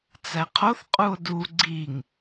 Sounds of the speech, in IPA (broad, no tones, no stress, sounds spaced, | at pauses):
t͡s æ qʰ o θ qʼ u o̯ d u ɡ͡ǀ i ŋ